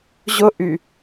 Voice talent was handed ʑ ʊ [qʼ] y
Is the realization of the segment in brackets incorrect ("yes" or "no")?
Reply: yes